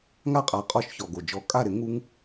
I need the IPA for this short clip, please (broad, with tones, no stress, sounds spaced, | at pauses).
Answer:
ŋ a˥˩ qʼ a˨˥ qʼ ɔ˧˩˧ ʃ ç ɔ˩ ɡ o˩ d͡ʒ ɔ˧˩˧ kʼ a˥˩ ɾ ɪ˨˥ ŋ u˦ ŋ